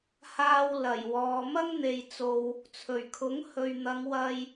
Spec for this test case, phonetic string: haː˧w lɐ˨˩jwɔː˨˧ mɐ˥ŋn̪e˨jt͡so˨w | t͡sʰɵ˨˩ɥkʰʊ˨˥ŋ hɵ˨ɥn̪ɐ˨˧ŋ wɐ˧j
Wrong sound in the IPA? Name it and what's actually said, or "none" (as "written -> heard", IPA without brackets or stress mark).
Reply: none